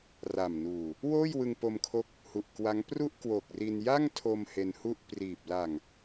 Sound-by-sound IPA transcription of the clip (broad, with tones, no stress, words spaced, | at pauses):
ra˨˩mnuː˨˩ | woː˥˩jwɯ˧ŋ po˧mkʰo˦˥k̚ | hu˨˩ʔkwa˦˥ŋ pru˥˩ʔkwo˨˩k̚ri˧n ja˥˩ŋtʰo˧m he˧nhu˥˩ʔ priː˨˩p̚ la˨˩ŋ